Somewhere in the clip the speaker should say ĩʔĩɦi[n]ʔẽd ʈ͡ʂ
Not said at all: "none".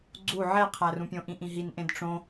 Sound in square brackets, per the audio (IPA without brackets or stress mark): n